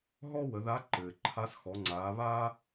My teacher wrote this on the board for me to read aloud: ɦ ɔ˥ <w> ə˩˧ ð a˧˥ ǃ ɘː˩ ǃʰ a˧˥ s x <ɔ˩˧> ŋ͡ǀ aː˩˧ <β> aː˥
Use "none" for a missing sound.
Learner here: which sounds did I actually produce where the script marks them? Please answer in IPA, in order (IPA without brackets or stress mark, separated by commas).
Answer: w, ɔ˩˧, β